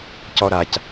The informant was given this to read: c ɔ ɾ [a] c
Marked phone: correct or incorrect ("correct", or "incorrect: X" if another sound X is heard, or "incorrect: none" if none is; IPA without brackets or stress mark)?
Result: correct